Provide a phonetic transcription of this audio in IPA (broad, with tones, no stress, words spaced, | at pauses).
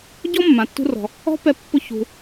ɟɔ˥mːã˩tːṳ˧rɔ̤˩ | ɔ̤˥pɛ˧ pːʊ˧ çṳ˩